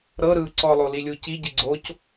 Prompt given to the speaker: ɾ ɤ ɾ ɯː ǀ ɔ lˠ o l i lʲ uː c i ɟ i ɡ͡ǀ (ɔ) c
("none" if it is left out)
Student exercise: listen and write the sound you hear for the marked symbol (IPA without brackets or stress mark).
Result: o